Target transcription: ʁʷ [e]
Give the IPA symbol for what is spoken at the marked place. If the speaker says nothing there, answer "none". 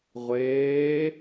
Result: eː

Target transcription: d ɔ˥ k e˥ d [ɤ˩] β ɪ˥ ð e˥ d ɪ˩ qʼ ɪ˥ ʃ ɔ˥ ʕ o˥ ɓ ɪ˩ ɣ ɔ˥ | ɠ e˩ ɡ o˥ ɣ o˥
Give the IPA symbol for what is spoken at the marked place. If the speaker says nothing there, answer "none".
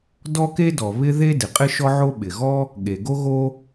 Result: ɔ˩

